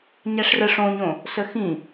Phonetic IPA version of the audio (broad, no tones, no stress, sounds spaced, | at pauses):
ɲ æ ʂ r ə ʂ õ ɲ õ | s ə x ĩ